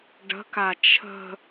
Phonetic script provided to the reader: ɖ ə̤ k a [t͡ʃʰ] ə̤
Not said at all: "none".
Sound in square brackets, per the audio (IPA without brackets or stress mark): t͡ʃʰ